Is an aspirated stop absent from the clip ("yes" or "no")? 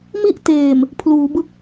no